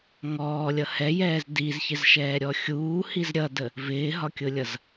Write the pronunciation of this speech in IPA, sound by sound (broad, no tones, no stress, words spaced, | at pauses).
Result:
ŋɔːlʲʌ hɛjɛːz dizçɪz ʃɛːɾʲɔxʲuːhiz ɾʲʌdə | vɪːɦɒkʲʊlʲʌz